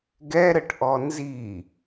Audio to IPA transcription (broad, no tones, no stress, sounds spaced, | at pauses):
ɡ ɛ ɾ ɘ ʈ ʔ ɔ n z i